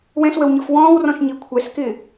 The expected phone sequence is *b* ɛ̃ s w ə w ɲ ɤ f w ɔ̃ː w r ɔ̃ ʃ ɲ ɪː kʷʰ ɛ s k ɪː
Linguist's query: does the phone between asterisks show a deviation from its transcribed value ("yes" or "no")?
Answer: yes